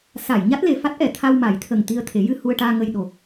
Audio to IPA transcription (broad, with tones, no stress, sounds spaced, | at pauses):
s a˨˩˨ j ɲ a˦˥ t̚ l e˨˩ f a˦˥ t̚ ʔ ɛ˨˩˨ t̪ʰ a˧ w m a˨˩˦ j t̪ʰ ə˨˩ ŋ t̪ i˧ ə̯ t̪ʰ e˨˩˦ j ɨ˧ h u˧ ə̯ ʈ aː˧ ŋ ə˧ j ɗ o˨˩